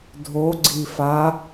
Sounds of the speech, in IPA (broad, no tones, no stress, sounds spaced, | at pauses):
dʱ o ɡ͡ǀ i f a